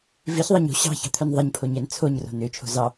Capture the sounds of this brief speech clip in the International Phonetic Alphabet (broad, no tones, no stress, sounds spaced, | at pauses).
v i ç ðˤ ɑ ɲ o̤ ɕ ɑ̤ ç ɑ̤ t̪ʰ œ n ðˤ ɛ ɲ pʰ o ɲ ɛ n t͡sʰ o ɲ r o̤ n ø t͡ʃʰ o̤ z ɑ